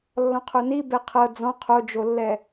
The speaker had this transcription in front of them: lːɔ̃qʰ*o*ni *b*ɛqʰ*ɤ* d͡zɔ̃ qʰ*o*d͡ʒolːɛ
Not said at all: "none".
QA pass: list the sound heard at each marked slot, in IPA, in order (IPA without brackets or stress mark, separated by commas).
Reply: o, b, ɤ, o